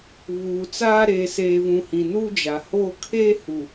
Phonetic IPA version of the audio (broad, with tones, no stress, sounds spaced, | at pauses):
β uː˨ t͡s aː˦ ɾ eː˨ s eː˨ v ũ˨ h ĩ˨ n u˦ d͡ʒ a˨ h oː˦ kʰ eː˦ h u˨